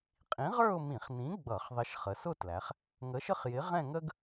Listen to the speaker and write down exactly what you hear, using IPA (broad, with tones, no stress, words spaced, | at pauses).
qʼĩ˨˥ʁə˞˥˧ʊ̯mĩ˧˩˧χnĩ˨˥ ɡ͡bʌ˧˩˧χðˤɪ˨˥ʃχə˩˧ sʊ˥˧tlæ˩˧χ | ŋə˨˥ʃə˥˧χjɪ˨˥ʁɛ̃˥˧ ŋə˥ɡ